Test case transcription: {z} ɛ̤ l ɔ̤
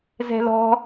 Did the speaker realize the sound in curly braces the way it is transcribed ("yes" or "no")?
yes